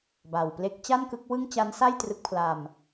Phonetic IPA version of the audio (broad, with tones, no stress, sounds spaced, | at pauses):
b a˨˩ w p l e˦˥ k̚ t͡ɕ a˥˩ n k ɯ˦˥ k̚ w ɯ˥˩ ŋ t͡ɕ a˦˥ n s a˥˩ j t r ɯ˦˥ k̚ pʰ l a˧ m